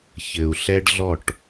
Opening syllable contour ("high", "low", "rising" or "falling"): low